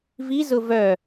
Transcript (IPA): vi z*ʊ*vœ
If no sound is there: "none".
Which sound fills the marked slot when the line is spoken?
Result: ʊ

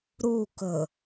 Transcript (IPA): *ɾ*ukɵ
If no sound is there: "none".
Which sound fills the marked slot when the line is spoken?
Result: ɾ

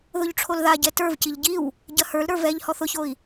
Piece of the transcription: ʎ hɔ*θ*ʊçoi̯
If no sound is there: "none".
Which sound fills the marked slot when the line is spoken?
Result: θ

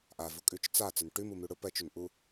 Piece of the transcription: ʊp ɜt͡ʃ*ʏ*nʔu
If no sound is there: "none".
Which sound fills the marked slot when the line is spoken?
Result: ʏ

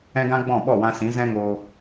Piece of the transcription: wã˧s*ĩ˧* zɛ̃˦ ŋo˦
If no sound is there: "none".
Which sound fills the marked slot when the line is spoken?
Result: ĩ˨˦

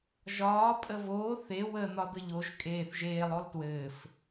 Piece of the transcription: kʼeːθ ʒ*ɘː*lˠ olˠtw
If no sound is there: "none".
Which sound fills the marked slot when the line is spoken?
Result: eː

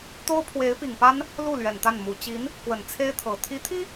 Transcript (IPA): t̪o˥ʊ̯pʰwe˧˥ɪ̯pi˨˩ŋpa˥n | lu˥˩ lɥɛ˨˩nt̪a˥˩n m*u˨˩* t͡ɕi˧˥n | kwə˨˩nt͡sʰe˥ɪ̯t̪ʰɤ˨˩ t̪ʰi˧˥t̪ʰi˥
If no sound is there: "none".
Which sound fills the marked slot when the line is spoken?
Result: u˨˩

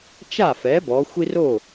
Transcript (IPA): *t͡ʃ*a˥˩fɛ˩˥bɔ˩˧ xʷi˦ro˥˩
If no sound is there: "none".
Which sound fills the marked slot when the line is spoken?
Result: t͡ʃ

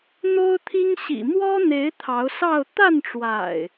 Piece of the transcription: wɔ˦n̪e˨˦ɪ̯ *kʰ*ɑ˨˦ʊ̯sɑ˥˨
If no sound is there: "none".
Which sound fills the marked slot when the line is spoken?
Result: t̪ʰ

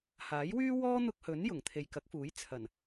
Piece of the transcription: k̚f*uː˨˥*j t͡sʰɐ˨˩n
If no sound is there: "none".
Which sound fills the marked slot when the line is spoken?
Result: uː˨˥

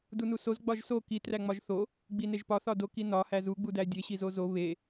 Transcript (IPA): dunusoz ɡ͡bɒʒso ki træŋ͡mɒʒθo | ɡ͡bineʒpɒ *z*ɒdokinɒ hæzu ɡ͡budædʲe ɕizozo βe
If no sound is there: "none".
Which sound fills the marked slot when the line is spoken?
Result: θ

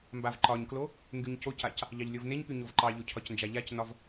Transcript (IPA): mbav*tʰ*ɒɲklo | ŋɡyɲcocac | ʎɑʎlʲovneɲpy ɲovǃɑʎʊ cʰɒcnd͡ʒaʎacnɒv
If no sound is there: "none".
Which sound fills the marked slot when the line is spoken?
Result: ǃ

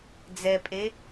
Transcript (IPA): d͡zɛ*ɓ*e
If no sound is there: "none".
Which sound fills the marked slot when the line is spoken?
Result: pʼ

